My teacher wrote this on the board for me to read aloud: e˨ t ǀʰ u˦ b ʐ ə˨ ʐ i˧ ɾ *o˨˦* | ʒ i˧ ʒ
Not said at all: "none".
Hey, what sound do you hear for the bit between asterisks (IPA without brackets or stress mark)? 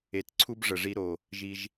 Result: o˨